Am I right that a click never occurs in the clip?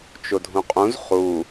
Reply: yes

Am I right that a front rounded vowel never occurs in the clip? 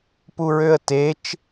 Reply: no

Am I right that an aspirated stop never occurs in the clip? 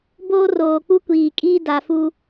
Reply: yes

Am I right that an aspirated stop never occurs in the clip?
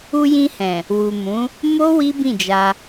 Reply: yes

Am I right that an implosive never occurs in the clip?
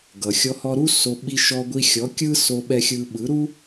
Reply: no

